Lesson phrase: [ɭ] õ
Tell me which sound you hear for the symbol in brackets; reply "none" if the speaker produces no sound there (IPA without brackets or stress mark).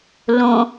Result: l